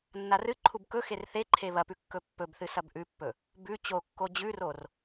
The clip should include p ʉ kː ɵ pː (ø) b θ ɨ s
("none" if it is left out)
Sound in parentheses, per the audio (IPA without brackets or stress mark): ɵ